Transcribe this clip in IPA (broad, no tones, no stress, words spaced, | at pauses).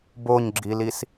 boɲɡ͡ǁilis